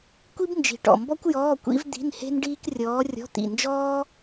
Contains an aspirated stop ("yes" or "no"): no